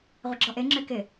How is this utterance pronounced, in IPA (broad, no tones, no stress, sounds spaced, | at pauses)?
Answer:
ʁʷ ɪ ɡ͡ǁ ɔ ʔ e ŋ͡ǁ ʏː k ɪ